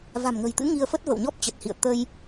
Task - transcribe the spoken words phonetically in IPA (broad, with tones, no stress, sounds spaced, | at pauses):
v a̤˨˩ m ŋ ə̤˨˩ j t̪ ɨ̰˧˥ ŋ i˧ ə̯ f ə˦˥ t̚ v ə̰˧˨ w ɲ ɔ˦˥ p̚ t͡ɕ ə˨˩ t̚ h ḭ˧˨ ə̯ t̪ ə˧ j